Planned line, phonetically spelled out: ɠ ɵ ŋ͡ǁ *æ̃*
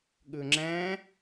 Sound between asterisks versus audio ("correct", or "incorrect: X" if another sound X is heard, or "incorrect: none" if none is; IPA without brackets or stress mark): correct